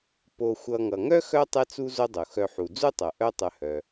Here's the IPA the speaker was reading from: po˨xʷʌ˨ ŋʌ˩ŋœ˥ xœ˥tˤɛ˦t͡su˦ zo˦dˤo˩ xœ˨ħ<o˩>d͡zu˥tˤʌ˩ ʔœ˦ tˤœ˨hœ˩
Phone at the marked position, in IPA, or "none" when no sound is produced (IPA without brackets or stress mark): u˩